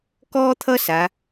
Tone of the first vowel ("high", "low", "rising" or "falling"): high